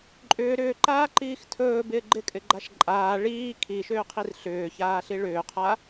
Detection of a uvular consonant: present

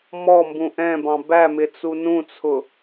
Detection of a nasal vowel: present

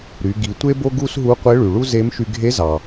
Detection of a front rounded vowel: present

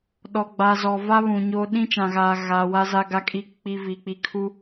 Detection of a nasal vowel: present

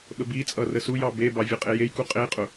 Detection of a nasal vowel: absent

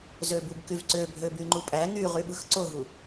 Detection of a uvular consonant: present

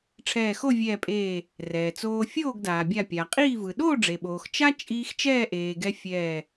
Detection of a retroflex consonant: present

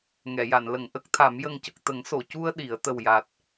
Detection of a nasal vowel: absent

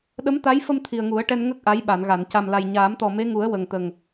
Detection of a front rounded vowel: absent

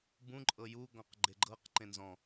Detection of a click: present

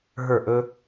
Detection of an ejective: absent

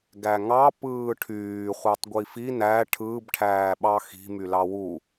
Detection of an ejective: absent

